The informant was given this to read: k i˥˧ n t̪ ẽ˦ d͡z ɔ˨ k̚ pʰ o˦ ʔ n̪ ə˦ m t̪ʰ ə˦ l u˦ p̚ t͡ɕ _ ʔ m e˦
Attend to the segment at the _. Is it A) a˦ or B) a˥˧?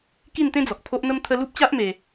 A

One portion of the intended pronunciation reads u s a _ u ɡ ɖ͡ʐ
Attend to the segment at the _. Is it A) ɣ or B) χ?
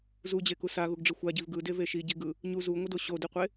A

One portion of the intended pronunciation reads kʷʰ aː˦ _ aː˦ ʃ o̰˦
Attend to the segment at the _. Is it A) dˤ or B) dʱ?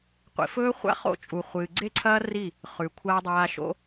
A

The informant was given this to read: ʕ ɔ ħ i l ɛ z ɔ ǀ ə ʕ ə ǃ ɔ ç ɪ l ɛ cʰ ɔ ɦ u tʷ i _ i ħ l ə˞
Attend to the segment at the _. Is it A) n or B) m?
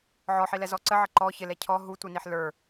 A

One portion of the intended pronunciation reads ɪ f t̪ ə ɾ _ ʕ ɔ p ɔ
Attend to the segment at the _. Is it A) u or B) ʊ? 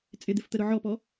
B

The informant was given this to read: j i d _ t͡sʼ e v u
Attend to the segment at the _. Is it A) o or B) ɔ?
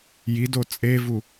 A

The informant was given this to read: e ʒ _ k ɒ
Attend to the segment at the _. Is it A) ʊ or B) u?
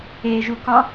B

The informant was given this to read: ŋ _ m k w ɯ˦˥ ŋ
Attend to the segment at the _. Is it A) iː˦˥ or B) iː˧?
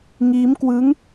A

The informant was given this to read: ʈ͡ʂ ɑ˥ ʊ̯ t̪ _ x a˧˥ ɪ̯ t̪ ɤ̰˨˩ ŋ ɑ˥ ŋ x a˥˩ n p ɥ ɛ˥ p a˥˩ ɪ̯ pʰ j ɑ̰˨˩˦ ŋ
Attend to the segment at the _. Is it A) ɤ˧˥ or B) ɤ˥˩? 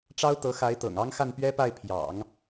A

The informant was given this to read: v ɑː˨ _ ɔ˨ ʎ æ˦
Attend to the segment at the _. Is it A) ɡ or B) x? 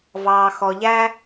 B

